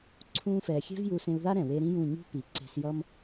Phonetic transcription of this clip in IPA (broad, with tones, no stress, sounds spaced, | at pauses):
ǀʰ ũː˧ f ɛː˨ xʲ ɛ̤˦ v j u˧ s ẽ˧ u̯ ð a˦ ɾ ɛ̃˨ w e˧ ɾ ĩ˦ j ũ˦˨ ɲ ṳ˦ p i˨ ǀ e̤˧ s j ʌ˦ m